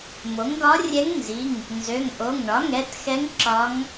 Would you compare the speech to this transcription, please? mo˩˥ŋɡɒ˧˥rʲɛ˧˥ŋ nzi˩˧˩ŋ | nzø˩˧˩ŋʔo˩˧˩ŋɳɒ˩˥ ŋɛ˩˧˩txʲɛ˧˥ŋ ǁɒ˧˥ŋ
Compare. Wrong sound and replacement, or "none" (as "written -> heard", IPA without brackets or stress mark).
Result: xʲ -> x